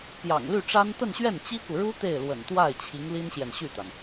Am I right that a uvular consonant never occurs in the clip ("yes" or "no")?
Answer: yes